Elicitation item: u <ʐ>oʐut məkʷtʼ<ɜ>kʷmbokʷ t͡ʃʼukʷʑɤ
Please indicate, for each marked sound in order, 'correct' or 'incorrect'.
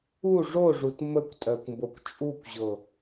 correct, correct

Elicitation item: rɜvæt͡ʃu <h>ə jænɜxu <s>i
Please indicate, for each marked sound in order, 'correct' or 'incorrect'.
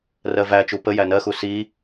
incorrect: p, correct

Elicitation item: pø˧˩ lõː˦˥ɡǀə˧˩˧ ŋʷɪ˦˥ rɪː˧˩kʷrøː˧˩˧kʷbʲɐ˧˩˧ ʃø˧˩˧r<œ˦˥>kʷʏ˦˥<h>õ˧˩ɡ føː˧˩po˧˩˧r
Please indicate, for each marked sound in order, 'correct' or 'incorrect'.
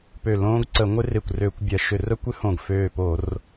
correct, correct

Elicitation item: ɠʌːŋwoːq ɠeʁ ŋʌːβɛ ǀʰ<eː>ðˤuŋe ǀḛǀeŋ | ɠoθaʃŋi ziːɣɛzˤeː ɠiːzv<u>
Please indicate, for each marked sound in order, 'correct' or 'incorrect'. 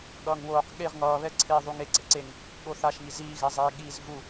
correct, correct

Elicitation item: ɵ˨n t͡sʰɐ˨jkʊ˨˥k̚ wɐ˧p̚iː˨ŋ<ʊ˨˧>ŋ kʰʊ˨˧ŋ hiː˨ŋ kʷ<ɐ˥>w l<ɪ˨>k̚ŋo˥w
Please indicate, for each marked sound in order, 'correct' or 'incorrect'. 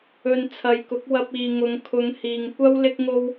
correct, correct, incorrect: ɪ˥

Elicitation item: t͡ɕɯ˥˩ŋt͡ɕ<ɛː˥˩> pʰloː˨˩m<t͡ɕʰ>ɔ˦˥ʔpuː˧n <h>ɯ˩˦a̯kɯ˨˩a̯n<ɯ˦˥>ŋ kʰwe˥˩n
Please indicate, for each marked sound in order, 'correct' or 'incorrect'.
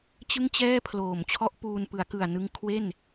correct, correct, incorrect: p, incorrect: ɯ˧

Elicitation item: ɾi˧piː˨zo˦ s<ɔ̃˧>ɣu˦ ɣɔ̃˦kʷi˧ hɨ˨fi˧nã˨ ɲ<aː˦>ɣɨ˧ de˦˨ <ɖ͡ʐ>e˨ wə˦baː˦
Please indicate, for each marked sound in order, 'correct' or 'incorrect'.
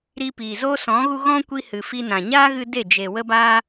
incorrect: ɔ̃˨˦, correct, incorrect: d͡ʒ

